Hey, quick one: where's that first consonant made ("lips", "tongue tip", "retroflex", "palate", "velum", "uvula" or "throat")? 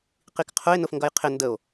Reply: uvula